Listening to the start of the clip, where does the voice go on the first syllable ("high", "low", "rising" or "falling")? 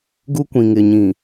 high